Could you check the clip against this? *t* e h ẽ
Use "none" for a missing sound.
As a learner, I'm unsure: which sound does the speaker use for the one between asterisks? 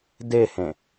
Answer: d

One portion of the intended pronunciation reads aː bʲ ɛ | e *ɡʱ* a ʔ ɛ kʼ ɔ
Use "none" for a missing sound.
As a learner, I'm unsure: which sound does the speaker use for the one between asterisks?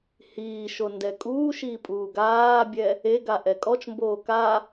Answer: ɡ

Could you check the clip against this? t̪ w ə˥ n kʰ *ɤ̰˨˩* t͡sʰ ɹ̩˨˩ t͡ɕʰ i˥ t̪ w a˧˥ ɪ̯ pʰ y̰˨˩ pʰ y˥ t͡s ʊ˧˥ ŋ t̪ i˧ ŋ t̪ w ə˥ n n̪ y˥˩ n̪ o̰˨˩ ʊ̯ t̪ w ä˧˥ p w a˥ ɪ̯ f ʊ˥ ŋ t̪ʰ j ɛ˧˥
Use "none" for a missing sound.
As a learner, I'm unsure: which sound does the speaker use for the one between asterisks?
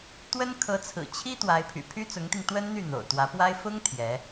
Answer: ɤ˧˥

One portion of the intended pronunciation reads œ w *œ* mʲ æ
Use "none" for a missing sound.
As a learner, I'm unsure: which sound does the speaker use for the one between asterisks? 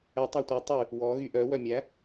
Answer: œ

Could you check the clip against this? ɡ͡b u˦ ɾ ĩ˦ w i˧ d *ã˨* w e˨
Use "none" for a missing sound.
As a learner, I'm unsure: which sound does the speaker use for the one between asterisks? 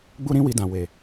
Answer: ã˨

